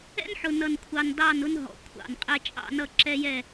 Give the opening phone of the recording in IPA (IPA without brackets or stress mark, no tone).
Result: ɛ̰